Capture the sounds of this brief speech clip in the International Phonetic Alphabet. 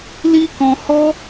l i˦ k ɔ̃˧ h ɔ˦

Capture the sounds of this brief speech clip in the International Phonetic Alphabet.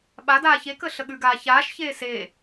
ɓ a d aː ç e k ə ɬ ə ɠ ʉ ɡ aː ç aː ʃ ç eː s eː

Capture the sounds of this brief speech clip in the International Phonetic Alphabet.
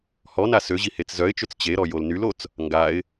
h ɔ n a s ø ʑ i h e t͡s z œ ɪ̯ t͡ʃ ø t͡s t͡ɕ e ɾ ɔ j o l n y l o t͡s | ŋ ɡ a ɪ̯

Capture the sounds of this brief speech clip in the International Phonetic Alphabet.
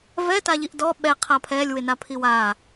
v ɛ t a ʎ i ʔ d ɔ ɓ ɛ qʰ a pʰ ɛ lʲ w ɪ n a pʰ i w a

